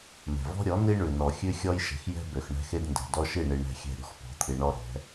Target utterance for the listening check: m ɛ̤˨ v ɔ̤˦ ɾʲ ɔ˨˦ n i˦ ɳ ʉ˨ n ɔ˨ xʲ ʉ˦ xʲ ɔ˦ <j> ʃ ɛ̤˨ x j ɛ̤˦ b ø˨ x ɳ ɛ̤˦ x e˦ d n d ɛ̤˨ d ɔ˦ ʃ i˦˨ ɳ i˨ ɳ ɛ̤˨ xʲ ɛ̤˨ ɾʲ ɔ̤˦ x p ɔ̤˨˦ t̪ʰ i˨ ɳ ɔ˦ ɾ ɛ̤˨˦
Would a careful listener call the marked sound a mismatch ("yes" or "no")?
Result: no